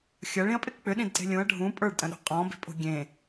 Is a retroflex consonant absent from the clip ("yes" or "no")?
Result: no